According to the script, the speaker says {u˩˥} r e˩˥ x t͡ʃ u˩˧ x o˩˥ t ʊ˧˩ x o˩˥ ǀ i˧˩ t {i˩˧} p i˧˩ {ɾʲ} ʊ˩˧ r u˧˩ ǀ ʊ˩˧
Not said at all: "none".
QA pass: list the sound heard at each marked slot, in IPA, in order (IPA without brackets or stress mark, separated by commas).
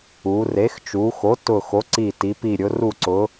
u˩˧, i˩˧, ɾʲ